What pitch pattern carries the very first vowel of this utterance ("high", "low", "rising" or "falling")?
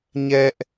high